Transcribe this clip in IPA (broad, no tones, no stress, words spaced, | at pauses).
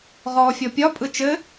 ʁɔːfʲɔpʲɒ pʼɯt͡ʃɘ